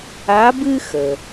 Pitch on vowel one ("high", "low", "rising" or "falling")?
rising